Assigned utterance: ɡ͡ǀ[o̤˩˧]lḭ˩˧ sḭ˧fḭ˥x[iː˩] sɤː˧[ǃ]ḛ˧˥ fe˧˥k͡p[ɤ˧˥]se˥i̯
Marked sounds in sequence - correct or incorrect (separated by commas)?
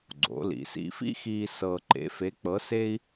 incorrect, incorrect, correct, correct